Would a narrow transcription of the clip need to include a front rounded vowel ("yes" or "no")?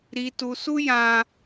no